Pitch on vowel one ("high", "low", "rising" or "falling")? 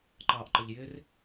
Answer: low